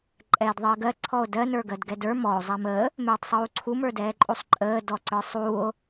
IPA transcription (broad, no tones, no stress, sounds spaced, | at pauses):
ǃʼ ɛː d ðˤ əː ɡ ɜ ǀʰ ɔ o̯ d ɜ n ə˞ ɡ ɜ d ɡ ɛ d ə˞ m ɔ o̯ zˤ a m əː | m ʏː tˤ sˤ uː ǀʰ u m ə˞ d ɛː ǃʼ u sˤ ǃʼ əː d ɔ ǀ ə˞ sˤ uː o̯